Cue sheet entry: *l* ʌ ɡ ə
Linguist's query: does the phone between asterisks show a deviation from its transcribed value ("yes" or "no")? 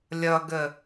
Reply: yes